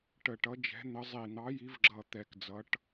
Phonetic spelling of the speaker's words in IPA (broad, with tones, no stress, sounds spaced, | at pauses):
ʈ ə˧˩ ʈ ʌ˨˥ d͡ʒ ɛ̤˨˥ n̪ ə˨˥ zˤ i˧˩ n̪ ɑ˨˥ j i˨˥ v ɡ͡ǁ ʌ˧˩ t̪ ɛ˧˩ k d͡z ʌ˨˥ ʈ